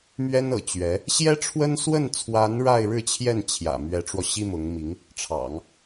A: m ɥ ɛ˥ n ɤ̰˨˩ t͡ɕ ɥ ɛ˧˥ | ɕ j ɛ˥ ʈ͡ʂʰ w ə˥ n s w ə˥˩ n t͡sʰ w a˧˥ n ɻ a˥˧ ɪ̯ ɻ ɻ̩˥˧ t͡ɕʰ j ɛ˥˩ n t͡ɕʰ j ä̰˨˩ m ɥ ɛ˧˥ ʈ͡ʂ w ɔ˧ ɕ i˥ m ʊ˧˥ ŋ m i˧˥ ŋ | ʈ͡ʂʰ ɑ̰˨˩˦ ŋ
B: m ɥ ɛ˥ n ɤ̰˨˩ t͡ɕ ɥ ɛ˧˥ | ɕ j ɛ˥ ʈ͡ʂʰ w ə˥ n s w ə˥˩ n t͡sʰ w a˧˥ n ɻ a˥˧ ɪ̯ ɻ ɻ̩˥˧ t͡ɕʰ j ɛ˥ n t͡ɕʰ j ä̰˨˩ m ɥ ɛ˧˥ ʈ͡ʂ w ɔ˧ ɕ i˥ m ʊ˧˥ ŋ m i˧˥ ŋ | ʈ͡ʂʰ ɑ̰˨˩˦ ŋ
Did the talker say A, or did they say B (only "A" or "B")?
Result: A